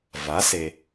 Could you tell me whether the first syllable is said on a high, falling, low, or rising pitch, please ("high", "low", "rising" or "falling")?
rising